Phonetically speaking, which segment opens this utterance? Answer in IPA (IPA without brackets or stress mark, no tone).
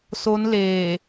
s